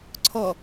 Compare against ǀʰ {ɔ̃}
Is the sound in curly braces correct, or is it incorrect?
incorrect